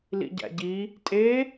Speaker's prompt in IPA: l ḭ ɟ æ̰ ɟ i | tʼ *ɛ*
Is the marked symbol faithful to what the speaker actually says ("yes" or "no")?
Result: no